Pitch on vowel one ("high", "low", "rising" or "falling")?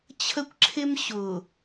high